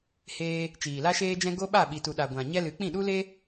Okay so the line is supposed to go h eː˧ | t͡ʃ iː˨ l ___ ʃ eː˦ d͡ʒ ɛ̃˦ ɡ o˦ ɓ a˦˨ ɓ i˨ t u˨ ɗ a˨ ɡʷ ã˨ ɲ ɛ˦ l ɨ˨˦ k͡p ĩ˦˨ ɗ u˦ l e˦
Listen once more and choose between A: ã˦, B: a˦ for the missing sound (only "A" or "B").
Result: B